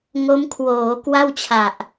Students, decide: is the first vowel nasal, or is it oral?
oral